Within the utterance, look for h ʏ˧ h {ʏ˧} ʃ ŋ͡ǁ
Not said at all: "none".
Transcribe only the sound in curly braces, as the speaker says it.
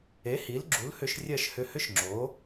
ʏ˥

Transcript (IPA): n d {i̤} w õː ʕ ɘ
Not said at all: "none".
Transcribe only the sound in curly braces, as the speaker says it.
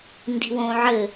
i̤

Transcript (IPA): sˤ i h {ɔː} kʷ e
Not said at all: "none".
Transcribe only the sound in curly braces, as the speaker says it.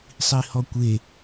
ɔ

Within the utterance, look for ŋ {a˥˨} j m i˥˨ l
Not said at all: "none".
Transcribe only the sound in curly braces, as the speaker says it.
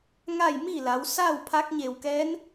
a˥˨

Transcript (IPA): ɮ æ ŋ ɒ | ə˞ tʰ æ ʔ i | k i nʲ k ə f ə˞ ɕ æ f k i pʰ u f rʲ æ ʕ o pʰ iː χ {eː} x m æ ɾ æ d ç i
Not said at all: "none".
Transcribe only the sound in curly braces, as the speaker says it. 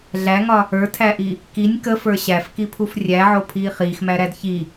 iː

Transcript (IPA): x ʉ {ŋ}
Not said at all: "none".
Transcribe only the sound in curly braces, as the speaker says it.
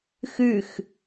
x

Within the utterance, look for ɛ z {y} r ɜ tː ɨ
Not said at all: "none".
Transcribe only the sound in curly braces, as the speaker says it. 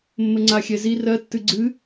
i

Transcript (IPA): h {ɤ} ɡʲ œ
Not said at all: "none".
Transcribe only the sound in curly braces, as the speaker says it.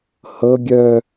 ɤ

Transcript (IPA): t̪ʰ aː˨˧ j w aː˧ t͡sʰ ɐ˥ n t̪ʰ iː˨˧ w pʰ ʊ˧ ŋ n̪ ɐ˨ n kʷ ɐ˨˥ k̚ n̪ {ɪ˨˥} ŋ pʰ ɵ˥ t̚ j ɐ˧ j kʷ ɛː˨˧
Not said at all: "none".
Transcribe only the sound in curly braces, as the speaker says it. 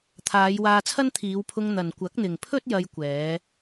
ɪ˨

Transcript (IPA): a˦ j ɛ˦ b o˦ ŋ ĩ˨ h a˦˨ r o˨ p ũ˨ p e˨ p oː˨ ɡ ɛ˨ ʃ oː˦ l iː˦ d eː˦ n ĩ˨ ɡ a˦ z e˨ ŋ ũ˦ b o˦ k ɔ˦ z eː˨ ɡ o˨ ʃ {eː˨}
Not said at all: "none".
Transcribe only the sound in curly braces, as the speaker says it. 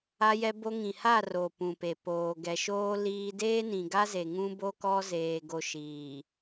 iː˨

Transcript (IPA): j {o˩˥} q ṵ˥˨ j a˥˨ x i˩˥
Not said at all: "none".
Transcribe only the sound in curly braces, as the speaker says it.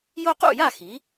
o˦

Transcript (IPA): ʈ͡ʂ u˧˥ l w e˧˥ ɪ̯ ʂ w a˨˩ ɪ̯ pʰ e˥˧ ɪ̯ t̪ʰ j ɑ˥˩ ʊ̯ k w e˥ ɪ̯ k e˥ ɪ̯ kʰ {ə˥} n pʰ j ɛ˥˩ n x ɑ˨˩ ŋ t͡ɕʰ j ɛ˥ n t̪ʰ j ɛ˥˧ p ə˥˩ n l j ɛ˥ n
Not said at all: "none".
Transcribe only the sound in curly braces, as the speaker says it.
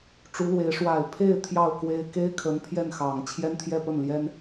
ə˧˥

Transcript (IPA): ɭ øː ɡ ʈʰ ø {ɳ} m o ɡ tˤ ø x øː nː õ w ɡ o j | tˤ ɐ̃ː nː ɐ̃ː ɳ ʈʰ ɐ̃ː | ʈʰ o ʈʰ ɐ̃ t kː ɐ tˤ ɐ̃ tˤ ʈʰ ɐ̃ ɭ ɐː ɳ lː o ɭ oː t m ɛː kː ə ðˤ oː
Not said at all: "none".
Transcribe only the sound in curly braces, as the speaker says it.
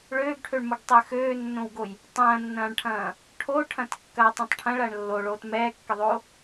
ɳ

